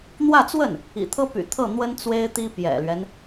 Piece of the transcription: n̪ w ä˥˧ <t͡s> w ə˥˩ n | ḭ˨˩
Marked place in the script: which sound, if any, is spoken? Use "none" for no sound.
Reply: t͡s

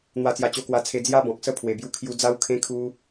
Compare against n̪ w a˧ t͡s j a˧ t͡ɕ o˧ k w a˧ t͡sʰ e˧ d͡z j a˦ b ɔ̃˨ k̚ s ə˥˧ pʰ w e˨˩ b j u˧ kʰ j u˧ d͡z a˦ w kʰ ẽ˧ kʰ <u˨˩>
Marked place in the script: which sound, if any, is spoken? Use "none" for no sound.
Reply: u˧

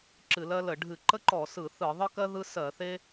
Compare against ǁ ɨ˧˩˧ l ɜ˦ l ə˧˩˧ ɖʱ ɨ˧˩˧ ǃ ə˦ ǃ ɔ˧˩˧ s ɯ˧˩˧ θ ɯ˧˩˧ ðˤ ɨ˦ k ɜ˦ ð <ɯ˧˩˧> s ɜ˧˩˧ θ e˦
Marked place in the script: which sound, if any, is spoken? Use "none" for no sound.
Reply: ɯ˦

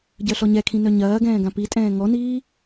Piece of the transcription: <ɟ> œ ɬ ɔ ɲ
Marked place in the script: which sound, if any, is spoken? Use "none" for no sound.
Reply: ɟ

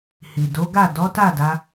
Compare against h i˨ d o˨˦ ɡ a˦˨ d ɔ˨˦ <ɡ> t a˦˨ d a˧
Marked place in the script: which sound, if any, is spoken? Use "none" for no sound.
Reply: none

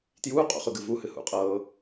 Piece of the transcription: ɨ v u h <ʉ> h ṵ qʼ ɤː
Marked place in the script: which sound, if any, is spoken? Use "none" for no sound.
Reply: ɨ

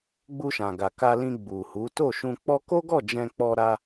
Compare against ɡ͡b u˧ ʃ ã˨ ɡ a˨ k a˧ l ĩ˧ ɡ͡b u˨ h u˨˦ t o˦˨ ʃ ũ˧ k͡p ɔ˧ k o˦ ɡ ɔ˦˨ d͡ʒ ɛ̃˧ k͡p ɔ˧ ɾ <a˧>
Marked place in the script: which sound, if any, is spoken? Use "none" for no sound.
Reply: a˧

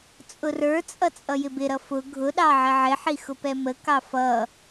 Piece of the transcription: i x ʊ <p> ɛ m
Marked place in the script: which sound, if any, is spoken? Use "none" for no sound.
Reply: p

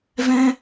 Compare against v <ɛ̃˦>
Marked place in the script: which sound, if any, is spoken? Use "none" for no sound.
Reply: ɛ̃˦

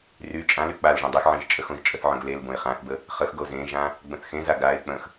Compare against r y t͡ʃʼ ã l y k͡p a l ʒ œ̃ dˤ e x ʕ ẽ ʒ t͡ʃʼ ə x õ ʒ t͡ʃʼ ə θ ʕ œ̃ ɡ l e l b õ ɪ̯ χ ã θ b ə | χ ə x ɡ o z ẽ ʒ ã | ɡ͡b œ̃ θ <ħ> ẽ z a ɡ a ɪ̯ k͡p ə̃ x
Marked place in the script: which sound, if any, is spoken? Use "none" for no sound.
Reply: x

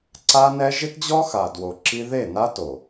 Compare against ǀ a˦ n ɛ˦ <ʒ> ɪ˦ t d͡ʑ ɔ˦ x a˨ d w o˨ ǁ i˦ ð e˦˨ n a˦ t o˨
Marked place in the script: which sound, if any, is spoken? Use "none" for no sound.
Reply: ʒ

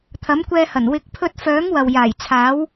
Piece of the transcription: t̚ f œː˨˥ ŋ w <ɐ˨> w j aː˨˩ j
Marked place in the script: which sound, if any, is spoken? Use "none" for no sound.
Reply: ɐ˨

